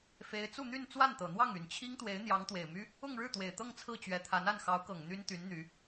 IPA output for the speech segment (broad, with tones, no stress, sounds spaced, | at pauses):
f e˧˥ ɪ̯ t͡s u˥˧ n̪ y˥˧ n t͡s w a˥˩ n t̪ ɤ˨˩ n̪ w ɑ˥˩ ŋ y˨˩ n t͡ɕʰ i˥ ŋ t̪ w e˧˥ ɪ̯ n̪ j ɑ˧˥ ŋ t̪ w e˨˩ ɪ̯ m y˥ | ʊ˥˧ ŋ ɻ ɻ̩˥˩ t̪ w e˨˩ ɪ̯ t̪ ɤ˥˧ ŋ t͡sʰ ɹ̩˥˩ t͡ɕ ɥ ɛ˧˥ t̪ʰ a˧˥ n a˥˩ n x ɑ˧˥ ʊ̯ k ɤ˨˩ ŋ n̪ y˥ n t̪ y˧˥ n n̪ y˧˥